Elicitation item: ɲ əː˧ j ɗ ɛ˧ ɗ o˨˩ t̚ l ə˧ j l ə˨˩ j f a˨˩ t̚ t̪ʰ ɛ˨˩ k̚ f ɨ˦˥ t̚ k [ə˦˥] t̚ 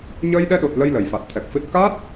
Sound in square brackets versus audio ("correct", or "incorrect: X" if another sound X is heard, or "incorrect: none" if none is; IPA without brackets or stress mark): incorrect: a˦˥